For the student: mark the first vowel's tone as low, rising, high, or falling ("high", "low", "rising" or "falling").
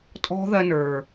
high